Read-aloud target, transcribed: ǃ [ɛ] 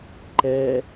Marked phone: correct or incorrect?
correct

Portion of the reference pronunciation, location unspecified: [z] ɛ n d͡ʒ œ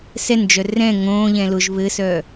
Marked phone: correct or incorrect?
incorrect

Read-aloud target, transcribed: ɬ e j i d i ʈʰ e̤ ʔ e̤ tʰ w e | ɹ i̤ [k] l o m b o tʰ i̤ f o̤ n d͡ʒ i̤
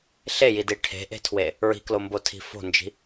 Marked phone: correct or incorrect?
correct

